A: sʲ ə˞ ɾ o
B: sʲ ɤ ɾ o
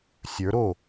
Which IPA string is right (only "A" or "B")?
A